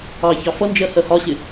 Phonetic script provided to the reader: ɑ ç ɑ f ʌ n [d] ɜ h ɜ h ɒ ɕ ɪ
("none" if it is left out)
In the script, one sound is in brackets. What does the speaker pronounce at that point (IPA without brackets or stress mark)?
d͡ʒ